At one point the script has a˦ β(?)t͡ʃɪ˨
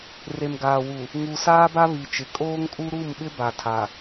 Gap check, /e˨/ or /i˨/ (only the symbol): i˨